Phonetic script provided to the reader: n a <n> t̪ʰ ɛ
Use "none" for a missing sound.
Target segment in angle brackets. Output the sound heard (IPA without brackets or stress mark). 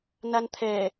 n